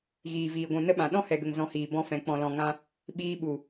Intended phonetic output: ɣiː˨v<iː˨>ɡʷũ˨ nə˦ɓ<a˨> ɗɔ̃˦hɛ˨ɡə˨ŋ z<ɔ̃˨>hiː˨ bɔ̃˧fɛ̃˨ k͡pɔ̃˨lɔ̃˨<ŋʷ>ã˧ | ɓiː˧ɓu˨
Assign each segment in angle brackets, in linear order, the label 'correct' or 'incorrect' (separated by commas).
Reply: correct, incorrect, incorrect, incorrect